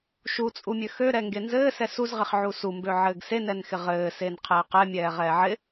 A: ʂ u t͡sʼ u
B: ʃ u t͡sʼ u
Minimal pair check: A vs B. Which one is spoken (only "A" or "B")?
B